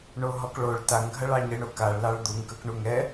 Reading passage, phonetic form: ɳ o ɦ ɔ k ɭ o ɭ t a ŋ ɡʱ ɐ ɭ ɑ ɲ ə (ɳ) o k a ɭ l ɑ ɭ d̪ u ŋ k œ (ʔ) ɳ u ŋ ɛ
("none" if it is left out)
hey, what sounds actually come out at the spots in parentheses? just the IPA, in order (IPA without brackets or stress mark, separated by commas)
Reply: ɳ, k